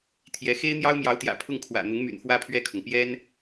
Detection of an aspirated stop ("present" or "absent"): present